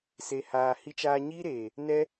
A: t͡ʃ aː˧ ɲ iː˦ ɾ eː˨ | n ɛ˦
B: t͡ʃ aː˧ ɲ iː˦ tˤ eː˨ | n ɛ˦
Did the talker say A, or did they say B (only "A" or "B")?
A